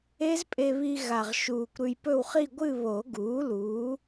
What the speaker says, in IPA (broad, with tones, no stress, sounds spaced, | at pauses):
e˦˥ z pʼ e˧ β i˧ ɣ a˨˩ ʁ ʃ uː˨˩ kʷ ɾ ʉ˧ j p ɵ˥˧ w χ i˥˧ ɡʷ ɨ˥˧ β o˨˩˦ ɡ uː˩˥ l uː˩˥